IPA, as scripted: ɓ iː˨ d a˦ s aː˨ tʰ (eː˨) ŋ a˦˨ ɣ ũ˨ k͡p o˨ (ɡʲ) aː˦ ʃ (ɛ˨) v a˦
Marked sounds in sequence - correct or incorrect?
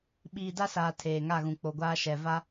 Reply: correct, incorrect: ɡʷ, correct

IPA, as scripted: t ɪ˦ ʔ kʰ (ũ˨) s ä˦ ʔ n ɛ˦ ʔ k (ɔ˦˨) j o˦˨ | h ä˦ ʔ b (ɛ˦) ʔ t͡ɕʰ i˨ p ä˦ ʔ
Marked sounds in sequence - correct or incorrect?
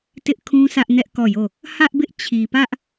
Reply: incorrect: ũ˦, correct, incorrect: ɪ˦

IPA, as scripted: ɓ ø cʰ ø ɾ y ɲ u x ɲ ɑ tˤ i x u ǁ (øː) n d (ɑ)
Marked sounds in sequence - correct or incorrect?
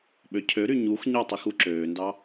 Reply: correct, correct

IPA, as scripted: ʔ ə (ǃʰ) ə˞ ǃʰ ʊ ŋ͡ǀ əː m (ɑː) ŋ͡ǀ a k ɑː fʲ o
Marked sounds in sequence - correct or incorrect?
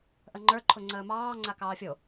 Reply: incorrect: ŋ͡ǃ, correct

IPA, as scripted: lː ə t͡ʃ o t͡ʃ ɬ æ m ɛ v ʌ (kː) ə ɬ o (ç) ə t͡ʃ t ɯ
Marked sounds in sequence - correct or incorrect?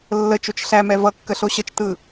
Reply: correct, incorrect: ɕ

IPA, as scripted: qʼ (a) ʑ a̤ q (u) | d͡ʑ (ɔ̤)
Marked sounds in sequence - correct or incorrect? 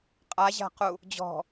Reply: correct, correct, correct

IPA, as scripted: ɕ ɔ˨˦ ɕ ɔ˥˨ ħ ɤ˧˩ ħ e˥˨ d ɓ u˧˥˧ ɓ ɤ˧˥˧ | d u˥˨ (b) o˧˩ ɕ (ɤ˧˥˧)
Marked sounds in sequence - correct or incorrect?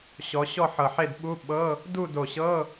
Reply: incorrect: d, correct

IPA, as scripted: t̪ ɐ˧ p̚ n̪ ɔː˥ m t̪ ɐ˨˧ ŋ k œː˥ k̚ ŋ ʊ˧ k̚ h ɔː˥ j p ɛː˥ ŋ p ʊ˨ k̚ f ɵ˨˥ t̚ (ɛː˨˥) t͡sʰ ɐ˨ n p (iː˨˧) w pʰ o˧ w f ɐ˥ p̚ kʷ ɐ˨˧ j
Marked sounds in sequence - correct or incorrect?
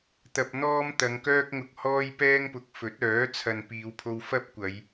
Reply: incorrect: œː˨˥, correct

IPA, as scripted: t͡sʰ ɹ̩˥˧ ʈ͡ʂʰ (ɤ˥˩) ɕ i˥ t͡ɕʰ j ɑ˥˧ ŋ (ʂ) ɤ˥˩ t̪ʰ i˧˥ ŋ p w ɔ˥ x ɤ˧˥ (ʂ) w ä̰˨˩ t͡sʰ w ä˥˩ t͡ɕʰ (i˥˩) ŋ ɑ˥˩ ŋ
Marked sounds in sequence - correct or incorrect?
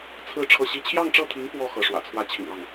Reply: correct, incorrect: ʈ͡ʂ, correct, incorrect: ḭ˨˩

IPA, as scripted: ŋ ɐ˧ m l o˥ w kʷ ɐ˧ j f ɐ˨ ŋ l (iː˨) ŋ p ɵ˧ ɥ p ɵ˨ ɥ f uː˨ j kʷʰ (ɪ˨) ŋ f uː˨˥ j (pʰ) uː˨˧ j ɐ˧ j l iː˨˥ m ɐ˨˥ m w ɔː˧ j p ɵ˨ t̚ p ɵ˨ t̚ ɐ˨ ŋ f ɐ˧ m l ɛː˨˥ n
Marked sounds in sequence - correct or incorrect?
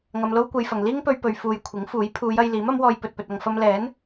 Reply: incorrect: iː˥, incorrect: ɪ˨˥, correct

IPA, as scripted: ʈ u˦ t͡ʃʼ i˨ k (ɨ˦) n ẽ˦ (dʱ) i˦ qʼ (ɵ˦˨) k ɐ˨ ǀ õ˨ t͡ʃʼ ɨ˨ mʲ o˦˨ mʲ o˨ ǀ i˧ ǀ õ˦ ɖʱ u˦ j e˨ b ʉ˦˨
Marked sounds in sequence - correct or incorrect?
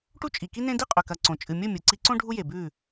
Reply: incorrect: i˦, incorrect: d, incorrect: ɵ˨

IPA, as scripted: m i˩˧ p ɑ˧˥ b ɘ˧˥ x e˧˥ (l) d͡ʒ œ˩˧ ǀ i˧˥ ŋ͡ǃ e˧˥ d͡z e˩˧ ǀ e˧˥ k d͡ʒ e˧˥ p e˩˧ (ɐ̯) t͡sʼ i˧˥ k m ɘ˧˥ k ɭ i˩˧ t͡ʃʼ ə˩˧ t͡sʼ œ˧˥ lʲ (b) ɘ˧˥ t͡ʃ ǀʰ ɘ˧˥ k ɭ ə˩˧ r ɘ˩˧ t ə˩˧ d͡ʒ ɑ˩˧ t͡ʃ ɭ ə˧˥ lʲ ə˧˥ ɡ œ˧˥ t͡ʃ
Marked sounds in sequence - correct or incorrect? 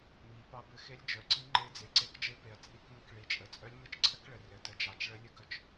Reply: incorrect: lʲ, correct, incorrect: m

